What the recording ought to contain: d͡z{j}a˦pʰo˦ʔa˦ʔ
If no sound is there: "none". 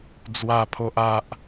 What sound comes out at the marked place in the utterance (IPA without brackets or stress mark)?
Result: w